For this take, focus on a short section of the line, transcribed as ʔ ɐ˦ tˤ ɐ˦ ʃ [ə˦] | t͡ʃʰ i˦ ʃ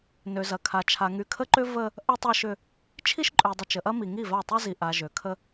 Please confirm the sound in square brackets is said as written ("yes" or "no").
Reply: no